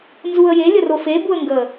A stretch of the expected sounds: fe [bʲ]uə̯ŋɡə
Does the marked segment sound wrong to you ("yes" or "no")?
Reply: yes